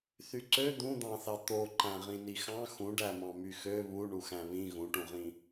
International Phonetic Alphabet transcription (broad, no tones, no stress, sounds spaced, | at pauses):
θ y ǀ ø d̪ ũ d̪ ɑ̃ θ ɑ t̪ o ǃ æ̃ ʁ ĩ n i x ɑ̃ x ũ ɖ æ m ɑ̃ m y x ø β u ɳ u x æ̃ β ĩ ɣ ũ ʈ ũ ʁ ĩ